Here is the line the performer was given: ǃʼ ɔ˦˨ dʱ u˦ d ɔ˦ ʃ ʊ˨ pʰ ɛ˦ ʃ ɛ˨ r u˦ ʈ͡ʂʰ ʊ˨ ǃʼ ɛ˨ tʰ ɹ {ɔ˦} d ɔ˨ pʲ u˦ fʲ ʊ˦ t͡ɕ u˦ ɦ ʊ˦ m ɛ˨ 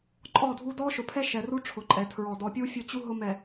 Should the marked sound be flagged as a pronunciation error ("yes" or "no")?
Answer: yes